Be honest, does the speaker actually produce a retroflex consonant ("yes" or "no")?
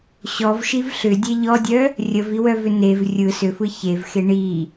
yes